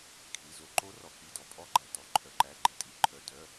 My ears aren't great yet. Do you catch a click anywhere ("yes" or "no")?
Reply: yes